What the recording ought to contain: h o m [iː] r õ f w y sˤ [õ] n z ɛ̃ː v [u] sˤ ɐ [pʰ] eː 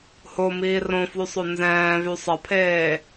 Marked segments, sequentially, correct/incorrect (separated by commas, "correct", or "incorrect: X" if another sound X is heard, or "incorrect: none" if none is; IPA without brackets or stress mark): correct, incorrect: o, incorrect: y, correct